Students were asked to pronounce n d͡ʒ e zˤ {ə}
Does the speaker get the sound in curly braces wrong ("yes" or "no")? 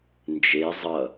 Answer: yes